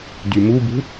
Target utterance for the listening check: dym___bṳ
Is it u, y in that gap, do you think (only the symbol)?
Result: u